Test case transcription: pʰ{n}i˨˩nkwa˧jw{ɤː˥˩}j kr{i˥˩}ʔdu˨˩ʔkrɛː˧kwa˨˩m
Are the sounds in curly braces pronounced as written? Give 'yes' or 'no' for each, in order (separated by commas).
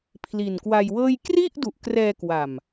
no, yes, yes